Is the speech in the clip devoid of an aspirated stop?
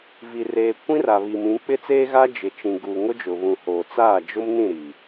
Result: yes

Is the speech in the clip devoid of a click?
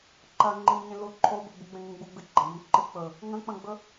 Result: no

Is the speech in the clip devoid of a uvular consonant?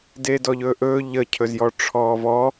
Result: yes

